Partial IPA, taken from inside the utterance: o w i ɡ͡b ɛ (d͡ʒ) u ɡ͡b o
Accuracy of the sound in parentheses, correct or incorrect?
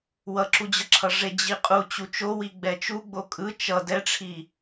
incorrect